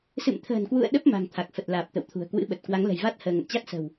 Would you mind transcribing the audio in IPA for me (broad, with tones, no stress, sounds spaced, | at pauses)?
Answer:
s ɨ̰˧˨ m t̪ʰ ə̤ː˨˩ n k w ṵ˧˨ ə̯ ɗ ə˦˥ p̚ m a̤˨˩ ŋ t̪ʰ a˨˩ k̚ f ə˨˩ t̚ l aː˨˩ p̚ t̪ ə̰˧˨ w t̪ʰ ṳ˨˩ ə̯ k w ɨ̰˧˥ ɓ ə˨˩ t̚ k w a˨˦ ŋ l ə̤˨˩ j v a˦˥ t̚ h əː˧ ŋ ə̰˧˨ n t͡ɕ a˦˥ t̚ s ə̤˨˩ w